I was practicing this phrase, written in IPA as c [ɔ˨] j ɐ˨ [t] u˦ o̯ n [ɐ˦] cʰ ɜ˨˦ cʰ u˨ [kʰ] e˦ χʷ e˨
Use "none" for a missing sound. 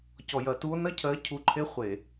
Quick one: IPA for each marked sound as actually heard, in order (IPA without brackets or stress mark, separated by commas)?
ɔ˨, t, ɐ˦, ǃʰ